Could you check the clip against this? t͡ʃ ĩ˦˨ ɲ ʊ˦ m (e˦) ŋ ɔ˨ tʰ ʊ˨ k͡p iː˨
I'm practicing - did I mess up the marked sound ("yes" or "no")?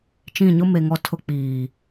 yes